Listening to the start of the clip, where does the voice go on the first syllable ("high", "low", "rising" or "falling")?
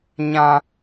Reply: high